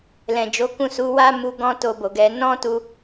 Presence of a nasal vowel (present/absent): present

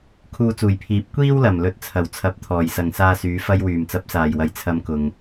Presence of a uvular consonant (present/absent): absent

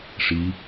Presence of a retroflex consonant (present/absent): present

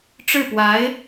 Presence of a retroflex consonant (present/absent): present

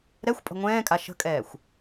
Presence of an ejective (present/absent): present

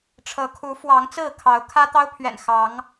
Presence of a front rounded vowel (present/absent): absent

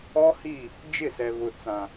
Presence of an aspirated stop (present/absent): absent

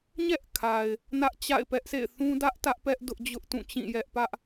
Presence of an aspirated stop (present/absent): present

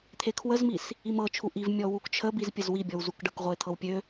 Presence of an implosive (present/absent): absent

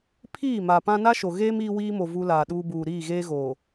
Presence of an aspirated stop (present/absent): present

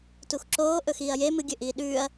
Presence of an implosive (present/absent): present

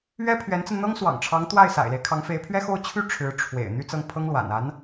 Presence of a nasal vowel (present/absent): absent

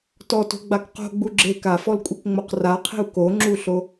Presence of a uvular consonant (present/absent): present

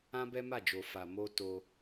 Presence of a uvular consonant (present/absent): absent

